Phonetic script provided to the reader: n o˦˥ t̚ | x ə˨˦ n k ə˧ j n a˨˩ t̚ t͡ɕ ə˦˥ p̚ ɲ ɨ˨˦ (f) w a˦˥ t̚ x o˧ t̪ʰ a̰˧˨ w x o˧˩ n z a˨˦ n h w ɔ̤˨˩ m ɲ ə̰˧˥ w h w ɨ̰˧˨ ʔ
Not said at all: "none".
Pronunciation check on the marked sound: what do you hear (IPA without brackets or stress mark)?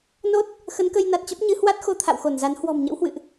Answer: h